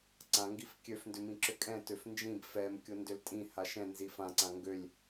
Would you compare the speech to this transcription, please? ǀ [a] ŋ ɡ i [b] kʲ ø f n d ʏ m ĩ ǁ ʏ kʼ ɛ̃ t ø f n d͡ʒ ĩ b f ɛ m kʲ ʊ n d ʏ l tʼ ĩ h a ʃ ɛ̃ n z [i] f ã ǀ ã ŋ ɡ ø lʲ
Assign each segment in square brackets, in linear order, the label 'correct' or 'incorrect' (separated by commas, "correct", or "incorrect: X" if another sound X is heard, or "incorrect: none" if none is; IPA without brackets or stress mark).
incorrect: ã, incorrect: f, correct